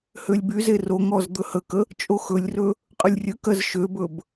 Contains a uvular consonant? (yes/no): yes